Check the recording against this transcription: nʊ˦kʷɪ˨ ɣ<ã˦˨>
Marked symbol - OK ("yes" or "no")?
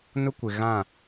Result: yes